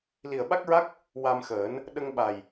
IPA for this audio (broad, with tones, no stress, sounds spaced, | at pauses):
l i˨˩ ə̯ ɓ a˦˥ k̚ ɹ a˦˥ k̚ | w a˧ m x əː˨˩˦ n | ɗ ə˧ ŋ ɓ a˨˩ j